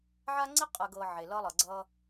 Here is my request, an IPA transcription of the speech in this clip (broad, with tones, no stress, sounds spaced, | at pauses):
ʕ a˦ ŋ͡ǀ i˦ qʼ ɜ˨ ɡ ɤ˨ ʕ e˨ l ʌ˦ lˠ ɤ˨ ɡ͡ǀ ʌ˦